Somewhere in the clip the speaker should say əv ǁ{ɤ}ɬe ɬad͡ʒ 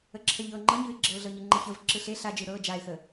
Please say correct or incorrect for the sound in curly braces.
incorrect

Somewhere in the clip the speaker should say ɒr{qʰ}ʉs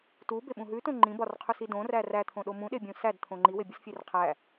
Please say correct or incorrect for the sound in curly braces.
correct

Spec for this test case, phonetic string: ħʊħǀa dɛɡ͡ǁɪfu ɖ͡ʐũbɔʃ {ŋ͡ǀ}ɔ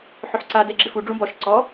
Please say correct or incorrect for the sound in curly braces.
incorrect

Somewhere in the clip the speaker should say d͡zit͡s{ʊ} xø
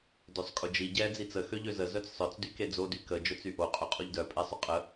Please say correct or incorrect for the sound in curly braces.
incorrect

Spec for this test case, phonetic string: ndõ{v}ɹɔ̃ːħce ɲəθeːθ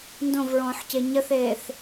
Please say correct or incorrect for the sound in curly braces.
correct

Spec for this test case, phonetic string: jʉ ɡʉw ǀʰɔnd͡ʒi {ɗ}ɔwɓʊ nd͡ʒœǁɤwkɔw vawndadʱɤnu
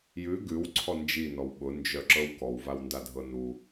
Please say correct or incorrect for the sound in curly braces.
incorrect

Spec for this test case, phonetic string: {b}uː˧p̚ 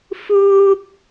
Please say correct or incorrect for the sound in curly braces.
incorrect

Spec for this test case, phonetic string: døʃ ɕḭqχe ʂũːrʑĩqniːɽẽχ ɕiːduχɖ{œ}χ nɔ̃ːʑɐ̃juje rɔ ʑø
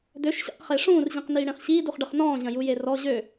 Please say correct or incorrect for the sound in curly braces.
incorrect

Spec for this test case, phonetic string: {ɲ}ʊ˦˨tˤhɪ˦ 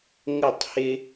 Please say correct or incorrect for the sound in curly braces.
incorrect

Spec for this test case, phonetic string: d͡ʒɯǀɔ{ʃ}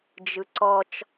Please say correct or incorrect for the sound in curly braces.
incorrect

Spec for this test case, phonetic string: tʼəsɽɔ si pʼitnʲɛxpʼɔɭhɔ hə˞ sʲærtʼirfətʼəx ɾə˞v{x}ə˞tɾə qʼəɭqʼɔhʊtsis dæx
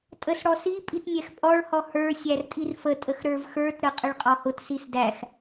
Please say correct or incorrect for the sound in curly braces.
correct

